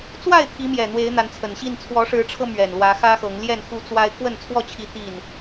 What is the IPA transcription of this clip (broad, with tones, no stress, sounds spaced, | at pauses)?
t͡s w a˥˨ ɪ̯ t̪ʰ i˨˦ m j ɛ˨˩ n̪ w e˨˦ ɪ̯ n̪ a˨˦ n t͡sʰ ə˨˩ n ɕ i˥˨ n t͡sʰ w ɔ˨˦ ʂ ɻ̩˨˦ ʈ͡ʂʰ ɤ˧ m ɥ ɛ˨˩ n l w ä˨˦ x ä˦ x ɤ˨˦ ŋ l j ɛ˥˨ n x u˦ t͡s w a˦ ɪ̯ k w ə˥˨ n t͡sʰ w ɔ˥˨ t͡ɕʰ i˨˦ t̪ i˥˨ n